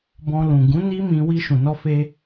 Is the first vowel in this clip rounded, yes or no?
yes